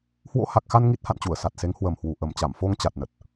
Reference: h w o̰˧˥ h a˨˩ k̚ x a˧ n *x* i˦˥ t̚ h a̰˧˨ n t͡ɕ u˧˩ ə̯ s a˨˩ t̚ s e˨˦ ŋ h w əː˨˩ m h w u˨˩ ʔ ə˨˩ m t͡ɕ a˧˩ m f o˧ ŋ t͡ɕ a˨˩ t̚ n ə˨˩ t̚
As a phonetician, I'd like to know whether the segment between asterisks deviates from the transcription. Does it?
yes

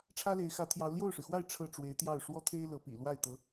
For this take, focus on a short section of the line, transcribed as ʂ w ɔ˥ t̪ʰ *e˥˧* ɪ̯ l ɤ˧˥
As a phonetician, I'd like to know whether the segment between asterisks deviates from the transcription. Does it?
yes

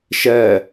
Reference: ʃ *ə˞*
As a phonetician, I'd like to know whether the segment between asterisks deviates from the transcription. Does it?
yes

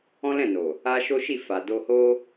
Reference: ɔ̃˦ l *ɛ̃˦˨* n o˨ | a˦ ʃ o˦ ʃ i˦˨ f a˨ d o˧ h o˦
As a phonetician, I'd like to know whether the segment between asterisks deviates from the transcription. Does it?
no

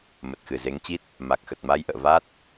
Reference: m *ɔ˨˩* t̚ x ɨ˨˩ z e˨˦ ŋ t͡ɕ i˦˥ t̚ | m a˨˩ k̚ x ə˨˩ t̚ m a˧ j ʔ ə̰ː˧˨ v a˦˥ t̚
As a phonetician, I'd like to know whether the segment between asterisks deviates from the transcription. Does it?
yes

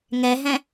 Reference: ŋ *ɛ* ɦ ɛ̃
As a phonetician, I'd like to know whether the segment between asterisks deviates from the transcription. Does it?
no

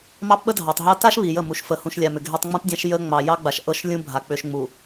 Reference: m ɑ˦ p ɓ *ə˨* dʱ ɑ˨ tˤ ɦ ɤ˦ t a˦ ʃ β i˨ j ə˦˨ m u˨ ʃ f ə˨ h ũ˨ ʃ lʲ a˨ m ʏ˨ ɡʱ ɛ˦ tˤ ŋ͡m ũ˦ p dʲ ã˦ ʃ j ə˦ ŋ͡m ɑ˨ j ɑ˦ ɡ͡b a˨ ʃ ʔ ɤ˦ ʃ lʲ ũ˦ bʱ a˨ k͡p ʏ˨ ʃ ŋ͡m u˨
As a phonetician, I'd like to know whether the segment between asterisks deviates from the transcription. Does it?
yes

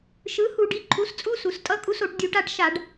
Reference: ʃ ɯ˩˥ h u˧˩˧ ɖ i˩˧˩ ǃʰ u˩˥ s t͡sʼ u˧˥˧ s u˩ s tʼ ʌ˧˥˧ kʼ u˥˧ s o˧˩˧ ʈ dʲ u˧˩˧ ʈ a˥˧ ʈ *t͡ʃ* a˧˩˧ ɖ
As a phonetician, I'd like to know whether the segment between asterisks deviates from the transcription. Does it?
yes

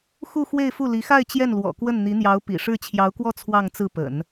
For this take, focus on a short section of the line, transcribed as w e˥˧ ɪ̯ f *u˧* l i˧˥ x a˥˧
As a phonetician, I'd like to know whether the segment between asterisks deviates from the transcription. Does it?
yes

